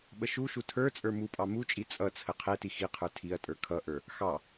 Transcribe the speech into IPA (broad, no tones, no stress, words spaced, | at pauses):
ɓəʃuʃu tʰə˞t͡sʼə˞ mupʼɑ mut͡ʃʼi t͡sʼʌt͡sʰə qʰɛti xiqʰə˞ tʰiɐ̯tʼə˞ kʰʌʔə˞ | xɑ